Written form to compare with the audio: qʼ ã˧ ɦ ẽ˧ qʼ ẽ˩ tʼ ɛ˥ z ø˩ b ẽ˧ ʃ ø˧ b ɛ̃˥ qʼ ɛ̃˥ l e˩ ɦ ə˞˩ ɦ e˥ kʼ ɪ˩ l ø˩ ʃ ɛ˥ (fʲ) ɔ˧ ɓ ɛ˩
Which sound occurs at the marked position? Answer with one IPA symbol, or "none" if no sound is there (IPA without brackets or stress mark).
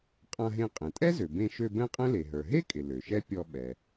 pʲ